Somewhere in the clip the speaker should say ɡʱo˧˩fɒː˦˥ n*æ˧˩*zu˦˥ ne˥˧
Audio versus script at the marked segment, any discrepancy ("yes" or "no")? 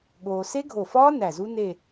no